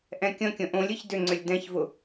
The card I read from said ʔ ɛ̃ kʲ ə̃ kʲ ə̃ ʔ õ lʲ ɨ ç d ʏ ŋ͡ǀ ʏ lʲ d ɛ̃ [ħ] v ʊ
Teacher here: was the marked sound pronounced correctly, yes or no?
no